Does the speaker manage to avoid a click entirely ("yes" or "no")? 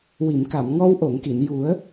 yes